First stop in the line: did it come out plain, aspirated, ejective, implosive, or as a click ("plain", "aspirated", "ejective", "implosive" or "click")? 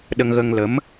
implosive